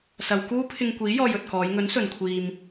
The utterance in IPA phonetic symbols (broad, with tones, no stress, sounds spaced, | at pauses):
s ɐ˨ w k uː˥ pʰ ɪ˧ ŋ kʷ iː˨˥ j ɔː˧ j ɵ˨ t̚ k ɔː˨˧ j ŋ ɵ˨˥ n s ɵ˨ n kʷʰ iː˨ m